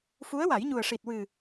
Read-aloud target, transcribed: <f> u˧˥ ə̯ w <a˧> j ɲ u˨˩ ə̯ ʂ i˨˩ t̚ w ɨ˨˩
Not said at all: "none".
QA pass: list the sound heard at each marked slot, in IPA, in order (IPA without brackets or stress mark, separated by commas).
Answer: f, a˨˩˦